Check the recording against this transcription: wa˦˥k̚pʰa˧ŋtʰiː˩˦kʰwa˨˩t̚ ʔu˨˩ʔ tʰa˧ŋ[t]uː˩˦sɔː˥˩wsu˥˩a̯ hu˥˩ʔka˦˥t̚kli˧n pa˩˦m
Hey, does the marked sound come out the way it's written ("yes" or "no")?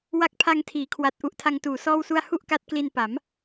yes